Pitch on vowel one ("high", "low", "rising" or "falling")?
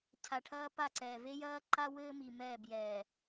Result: low